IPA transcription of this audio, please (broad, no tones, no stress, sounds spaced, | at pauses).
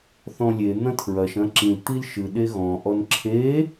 θ ɔ̃ lʲ e n̪ ɐ̃ tʰ ɹ ɐ ʃ ɐ̃ ǁ ĩ l t̪ i l ʃ ɨ ɗ e ɣ ɔ̃ ʔ ɔ n ǁʰ e